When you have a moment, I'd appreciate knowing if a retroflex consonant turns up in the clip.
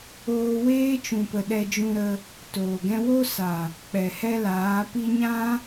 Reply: no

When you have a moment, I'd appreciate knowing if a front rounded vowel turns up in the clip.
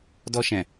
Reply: no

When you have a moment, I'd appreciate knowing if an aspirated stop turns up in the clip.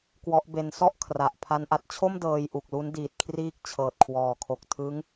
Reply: yes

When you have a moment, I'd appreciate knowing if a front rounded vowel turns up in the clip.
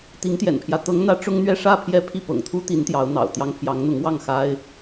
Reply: no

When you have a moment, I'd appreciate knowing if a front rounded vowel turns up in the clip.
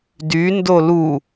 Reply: yes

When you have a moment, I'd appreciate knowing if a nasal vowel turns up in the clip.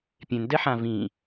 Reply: yes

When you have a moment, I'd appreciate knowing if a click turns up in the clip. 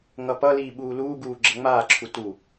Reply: yes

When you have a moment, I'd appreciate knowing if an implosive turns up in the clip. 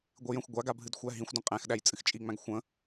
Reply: yes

